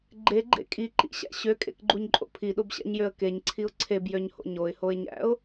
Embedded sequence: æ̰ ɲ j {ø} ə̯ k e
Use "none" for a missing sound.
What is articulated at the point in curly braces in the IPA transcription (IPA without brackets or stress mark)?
ø